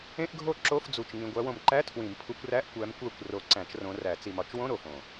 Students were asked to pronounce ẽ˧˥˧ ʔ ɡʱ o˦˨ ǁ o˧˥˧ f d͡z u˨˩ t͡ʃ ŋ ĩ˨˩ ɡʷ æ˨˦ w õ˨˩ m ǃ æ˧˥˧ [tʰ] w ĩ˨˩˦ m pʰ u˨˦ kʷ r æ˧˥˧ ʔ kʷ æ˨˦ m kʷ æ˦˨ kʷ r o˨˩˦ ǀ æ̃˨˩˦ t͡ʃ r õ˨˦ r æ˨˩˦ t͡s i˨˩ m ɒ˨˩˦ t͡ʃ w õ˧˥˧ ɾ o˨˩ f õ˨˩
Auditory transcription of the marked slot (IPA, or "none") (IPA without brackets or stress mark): tʰ